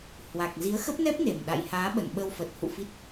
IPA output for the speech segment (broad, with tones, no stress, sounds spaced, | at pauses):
h w a˨˩ k̚ z i˨˦ ə̯ x ə˦˥ p̚ n ɛ˦˥ p̚ n e˨˩ m ɗ a̰˧˨ j h aː˨˦ ɓ ə̰˧˨ n ɓ ə˧ w f ə˨˩ t̚ h ṵ˧˨ f i˦˥ t̚